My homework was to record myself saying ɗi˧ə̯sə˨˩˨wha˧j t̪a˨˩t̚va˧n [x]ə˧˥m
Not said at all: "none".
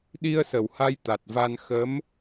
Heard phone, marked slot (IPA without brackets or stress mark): x